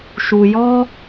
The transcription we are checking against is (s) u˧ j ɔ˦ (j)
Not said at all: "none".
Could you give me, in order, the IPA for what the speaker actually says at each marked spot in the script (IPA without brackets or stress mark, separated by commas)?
ʃ, none